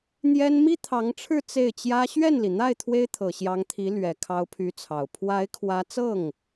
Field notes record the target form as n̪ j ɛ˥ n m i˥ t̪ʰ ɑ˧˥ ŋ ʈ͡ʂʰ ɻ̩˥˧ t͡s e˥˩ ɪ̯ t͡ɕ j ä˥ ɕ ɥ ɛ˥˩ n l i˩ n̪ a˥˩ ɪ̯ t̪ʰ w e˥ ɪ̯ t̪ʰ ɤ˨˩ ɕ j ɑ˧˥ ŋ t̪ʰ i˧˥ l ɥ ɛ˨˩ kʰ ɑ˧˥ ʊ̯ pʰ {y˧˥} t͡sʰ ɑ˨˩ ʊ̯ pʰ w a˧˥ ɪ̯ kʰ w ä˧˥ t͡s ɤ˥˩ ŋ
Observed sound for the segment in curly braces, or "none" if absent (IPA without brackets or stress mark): y˧˥